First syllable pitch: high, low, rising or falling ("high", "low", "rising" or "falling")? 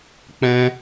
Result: high